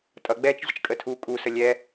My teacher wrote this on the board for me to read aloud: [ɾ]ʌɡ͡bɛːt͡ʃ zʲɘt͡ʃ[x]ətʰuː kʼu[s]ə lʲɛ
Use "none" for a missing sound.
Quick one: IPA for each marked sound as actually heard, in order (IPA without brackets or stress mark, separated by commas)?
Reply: tʼ, kʼ, s